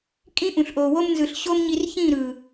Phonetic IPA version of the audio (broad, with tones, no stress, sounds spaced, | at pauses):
kʼ ĩ˦ ʔ ũ˨ ɬ ʔ oː˨ w o˦ m n z ɯ˨ ɬ ɕ o˦ m ɲ i˧ r ç ĩ˦˨ ɾ ɯ˨